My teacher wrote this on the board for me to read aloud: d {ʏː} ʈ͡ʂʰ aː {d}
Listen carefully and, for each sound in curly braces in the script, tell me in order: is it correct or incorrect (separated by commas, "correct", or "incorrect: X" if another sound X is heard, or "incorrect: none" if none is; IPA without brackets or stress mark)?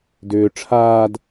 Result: correct, correct